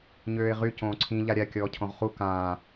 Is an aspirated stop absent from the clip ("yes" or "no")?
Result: no